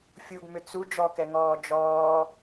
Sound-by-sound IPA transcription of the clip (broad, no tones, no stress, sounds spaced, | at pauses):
fʲ u ɡ m ʏ t͡s u d͡ʒ ɔ k ɛ ŋ ɔː d͡ʒ ɔː